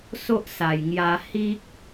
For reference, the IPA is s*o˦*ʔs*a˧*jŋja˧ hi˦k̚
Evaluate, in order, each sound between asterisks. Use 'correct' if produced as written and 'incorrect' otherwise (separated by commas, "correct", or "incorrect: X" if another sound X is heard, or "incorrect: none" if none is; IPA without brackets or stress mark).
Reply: correct, incorrect: a˨˩